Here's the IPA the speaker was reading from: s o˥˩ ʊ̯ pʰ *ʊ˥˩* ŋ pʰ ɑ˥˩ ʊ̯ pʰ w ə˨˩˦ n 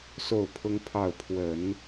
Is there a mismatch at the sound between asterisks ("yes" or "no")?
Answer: yes